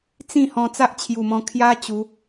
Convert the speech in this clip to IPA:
t͡s ĩ˥˧ h ɔ̃˧ t͡s a˦ ʔ t͡ɕʰ j u˨˩ m ɔ̃˧ kʰ j a˧ t͡ɕ u˨˦

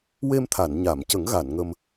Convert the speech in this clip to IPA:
w e˧ m t̪ʰ a˨˩˨ n ɲ a˨˩˨ m c ə˨˩˦ ŋ ɣ a˨˩˨ n ŋ ə˧ m

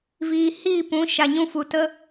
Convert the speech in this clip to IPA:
v iː˧ h iː˦˨ p ũ˨˦ ʃ a˨ ɲ ũ˧ f u˨ t ə˦

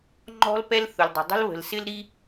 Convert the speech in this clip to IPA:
ŋ͡ǃ ɔ̤˦ l p ɛ˦ l θ ʊ˨ l dˤ ə̤˨ dˤ ə̤˦ l β ə̤˨ l s ɪ˦ l ɾ i˦

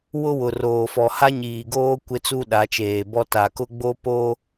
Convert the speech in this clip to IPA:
w ʊ˦ w ʊ˨ r oː˨ f ɔ˨ h a˦ ɲ iː˨ ɡ oː˦ kʷ ɪ˦ t͡s u˦ ɗ a˨˦ t͡ʃ eː˨ b ɔ˦ t a˨ k ʊ˦ ɡ͡b o˦ p o˦

